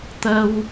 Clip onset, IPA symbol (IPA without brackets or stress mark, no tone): t̪